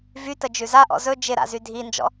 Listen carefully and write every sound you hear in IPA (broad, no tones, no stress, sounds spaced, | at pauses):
v y t ə d͡ʒ ʉ z a ʔ ɔ̰ z ɵ d͡ʒ ɪ ɾ a̰ z y dʱ i n d͡ʒ ɔ̰